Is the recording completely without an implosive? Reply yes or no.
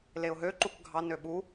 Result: no